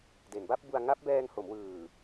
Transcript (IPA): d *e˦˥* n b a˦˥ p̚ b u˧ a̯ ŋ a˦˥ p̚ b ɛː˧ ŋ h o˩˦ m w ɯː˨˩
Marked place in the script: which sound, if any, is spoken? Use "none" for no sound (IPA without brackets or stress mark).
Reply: e˩˦